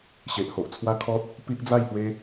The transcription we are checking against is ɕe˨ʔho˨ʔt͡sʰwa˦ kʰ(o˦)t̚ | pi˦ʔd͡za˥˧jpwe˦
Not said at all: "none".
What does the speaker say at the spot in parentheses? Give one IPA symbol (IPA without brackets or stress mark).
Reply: ɔ˦